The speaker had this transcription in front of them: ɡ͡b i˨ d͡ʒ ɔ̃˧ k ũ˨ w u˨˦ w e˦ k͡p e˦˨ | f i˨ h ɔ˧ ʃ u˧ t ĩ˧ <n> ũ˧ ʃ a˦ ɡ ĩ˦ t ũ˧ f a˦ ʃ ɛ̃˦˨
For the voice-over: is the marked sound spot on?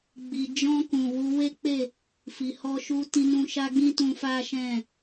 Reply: yes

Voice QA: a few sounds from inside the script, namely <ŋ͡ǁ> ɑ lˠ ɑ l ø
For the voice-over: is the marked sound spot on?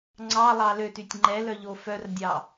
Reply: no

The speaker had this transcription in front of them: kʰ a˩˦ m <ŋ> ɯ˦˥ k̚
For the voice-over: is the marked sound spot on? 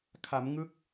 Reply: yes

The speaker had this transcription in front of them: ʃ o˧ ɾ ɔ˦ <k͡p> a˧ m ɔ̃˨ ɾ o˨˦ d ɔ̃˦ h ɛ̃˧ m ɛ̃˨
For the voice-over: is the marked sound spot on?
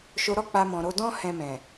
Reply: yes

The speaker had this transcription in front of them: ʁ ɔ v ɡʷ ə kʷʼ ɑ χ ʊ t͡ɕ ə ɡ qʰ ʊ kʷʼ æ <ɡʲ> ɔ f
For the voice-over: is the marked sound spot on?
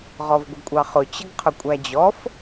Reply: no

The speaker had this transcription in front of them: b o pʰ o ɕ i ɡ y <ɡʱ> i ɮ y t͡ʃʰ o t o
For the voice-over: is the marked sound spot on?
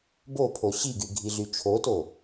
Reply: yes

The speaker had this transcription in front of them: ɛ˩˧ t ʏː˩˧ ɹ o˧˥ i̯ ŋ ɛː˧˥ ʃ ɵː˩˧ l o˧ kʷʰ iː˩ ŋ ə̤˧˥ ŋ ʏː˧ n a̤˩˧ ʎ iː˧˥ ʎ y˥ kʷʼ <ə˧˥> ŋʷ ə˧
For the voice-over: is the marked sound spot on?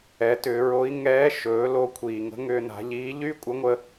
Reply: yes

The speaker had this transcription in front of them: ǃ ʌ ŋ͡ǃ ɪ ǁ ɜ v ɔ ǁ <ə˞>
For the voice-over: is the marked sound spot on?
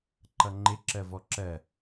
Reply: no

